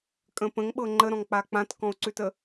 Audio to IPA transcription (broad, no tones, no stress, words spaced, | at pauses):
kʼə̃pə̃ŋɓɤ ŋ͡ǃəɾɔ̃ŋk͡pa k͡pãtkɔ̃o̯ǀʉtə